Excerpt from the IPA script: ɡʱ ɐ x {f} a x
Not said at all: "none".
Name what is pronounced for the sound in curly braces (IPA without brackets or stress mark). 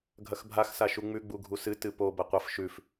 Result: bʱ